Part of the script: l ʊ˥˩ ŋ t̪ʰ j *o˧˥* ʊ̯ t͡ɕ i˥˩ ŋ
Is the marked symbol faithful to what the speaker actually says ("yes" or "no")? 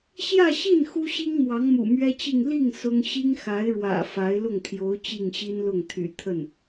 yes